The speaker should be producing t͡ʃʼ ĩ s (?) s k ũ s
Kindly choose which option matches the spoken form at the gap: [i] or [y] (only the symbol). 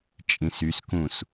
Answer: y